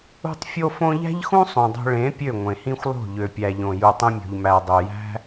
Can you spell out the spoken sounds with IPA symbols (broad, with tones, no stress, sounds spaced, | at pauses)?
ṳ˦ tˤ fʲ o˦ f õ˦ ʎ æ̤˦ ʎ x ũ˦ sˤ ũ˨ dˤ o̤˧ ɭ ẽ˨˦ pʲ ø˦˨ ŋʷ ẽ˨ h ĩ˦ xʷ lˠ o̤˦˨ ʎ ø˨ pʲ æ˨ ʎ õ˨ j u˨ tˤ ẽ˧ mʲ o̤˨ ʎ m æ˨ dˤ ø˨ j æ̤˦